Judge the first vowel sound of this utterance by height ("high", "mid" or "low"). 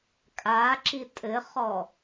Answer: low